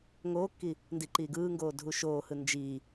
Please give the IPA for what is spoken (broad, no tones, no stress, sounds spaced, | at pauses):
ŋ oː kː i | n d i ǃ iː ɡ ɯː ŋ ɡ oː dʱ u ʃ oː h ɯ n d͡ʒ iː